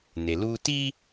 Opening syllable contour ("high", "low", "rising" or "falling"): low